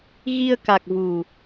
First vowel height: high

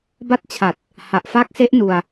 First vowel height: low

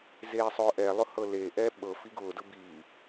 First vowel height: mid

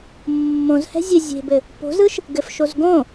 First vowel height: mid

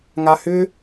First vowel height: low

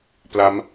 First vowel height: low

